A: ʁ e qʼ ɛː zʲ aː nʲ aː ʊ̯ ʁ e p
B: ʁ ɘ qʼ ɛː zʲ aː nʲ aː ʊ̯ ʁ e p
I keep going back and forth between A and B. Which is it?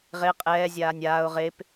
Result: A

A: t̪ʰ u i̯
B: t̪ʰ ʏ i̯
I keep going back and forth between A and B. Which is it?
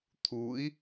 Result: A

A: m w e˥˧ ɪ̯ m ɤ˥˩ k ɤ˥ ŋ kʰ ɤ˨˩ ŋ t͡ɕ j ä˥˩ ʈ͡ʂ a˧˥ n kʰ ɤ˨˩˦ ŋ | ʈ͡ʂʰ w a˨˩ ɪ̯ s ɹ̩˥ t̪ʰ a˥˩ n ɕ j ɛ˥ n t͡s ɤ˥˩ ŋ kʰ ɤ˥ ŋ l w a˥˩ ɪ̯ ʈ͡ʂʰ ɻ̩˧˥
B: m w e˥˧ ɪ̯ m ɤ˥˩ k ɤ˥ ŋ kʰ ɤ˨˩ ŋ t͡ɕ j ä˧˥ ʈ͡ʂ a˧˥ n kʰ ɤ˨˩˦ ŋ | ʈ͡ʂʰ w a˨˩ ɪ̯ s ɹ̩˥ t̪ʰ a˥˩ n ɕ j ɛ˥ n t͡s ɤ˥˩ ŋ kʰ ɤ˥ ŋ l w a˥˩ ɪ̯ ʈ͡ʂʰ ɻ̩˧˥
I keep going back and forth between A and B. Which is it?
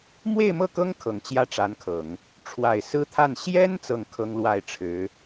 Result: A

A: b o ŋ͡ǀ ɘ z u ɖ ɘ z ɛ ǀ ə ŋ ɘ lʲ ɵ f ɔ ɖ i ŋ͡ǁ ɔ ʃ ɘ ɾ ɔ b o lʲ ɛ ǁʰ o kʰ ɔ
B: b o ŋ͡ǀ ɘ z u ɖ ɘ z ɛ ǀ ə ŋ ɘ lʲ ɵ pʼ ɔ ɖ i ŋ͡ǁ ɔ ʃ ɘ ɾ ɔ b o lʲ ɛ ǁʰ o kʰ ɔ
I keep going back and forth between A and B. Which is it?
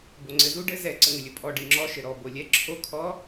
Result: B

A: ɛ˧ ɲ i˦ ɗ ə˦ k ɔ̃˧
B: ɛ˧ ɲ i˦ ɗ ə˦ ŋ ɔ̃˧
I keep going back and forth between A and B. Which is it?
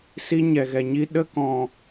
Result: A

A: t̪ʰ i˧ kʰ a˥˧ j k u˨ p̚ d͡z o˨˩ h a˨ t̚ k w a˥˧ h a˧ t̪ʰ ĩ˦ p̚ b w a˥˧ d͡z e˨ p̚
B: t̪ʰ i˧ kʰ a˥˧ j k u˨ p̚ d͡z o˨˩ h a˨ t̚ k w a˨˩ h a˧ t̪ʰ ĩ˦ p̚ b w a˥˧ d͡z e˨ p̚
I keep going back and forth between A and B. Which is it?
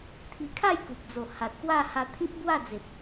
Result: A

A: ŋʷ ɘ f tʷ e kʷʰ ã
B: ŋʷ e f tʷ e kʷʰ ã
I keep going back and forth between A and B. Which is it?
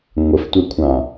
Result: A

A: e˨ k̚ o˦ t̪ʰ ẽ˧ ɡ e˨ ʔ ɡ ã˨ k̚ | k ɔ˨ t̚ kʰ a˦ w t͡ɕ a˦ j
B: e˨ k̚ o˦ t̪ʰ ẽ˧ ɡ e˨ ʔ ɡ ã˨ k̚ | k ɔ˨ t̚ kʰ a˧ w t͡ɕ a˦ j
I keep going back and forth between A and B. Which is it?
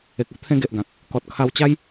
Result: B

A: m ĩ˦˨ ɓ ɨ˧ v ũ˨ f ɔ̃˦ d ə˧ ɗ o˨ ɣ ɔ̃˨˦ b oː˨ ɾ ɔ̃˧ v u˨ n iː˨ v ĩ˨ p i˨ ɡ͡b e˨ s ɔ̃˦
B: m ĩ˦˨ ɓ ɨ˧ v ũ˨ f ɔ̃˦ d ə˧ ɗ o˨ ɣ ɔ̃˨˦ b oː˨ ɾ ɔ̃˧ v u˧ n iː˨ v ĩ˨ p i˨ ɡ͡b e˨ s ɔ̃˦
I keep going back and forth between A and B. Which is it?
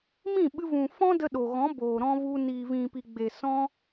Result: B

